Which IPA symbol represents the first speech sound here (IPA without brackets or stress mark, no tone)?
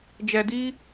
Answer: d͡ʒ